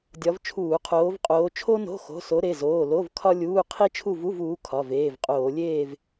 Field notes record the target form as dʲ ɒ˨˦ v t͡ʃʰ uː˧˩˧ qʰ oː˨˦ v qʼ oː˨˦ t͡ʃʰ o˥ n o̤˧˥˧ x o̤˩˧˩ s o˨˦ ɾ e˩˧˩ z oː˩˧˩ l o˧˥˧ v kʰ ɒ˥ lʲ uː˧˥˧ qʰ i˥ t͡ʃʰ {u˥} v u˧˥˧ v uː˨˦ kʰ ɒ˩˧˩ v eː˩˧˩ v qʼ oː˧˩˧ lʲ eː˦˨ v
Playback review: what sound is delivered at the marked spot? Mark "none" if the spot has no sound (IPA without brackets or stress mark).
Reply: u˦˨